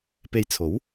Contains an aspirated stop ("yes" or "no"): yes